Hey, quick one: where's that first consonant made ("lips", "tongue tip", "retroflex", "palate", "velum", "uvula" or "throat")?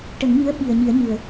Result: retroflex